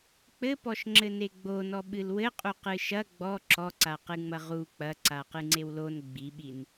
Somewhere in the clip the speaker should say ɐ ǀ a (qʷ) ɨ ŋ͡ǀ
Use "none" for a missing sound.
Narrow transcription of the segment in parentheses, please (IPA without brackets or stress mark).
q